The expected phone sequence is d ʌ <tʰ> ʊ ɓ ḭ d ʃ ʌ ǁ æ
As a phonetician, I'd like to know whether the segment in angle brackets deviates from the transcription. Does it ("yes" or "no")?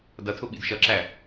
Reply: no